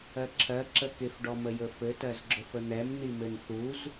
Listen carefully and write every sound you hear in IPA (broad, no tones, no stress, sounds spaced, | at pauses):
ɜ ǁʰ ɜ ǁ ə k ɪ f ɖ ɔ m ə j ɵ f ɘ t ɜ z ɡ͡ǁ ɵ f ə n̪ ɛ m n̪ i m ɘ n θ u z